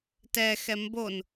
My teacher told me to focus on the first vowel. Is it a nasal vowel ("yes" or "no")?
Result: no